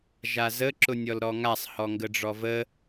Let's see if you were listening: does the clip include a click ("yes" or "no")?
yes